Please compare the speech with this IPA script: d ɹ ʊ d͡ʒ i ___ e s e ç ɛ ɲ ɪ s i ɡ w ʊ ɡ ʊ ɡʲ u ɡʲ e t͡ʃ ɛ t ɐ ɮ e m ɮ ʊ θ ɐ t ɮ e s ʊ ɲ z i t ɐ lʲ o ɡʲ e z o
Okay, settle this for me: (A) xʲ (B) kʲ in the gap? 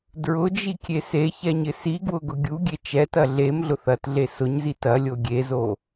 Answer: B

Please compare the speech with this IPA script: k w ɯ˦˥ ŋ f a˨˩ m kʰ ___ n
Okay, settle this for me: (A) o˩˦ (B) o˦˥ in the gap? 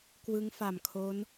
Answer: B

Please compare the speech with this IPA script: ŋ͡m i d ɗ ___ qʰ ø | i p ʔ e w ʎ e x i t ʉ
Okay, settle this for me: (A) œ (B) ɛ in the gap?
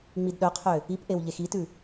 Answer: A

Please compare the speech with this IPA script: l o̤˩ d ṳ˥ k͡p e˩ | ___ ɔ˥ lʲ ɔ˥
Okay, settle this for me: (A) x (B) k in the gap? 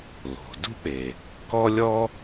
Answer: B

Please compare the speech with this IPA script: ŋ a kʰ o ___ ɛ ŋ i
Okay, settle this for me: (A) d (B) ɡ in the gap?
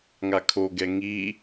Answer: B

